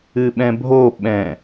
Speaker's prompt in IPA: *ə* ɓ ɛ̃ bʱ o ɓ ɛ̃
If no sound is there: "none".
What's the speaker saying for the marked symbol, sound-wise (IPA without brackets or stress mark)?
ɨ